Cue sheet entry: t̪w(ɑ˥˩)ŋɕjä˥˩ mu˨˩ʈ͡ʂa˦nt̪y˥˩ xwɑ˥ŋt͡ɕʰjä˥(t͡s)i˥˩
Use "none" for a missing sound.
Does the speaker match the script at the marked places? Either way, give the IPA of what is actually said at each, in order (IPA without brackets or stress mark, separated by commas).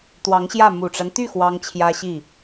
ɑ˧˥, ɕ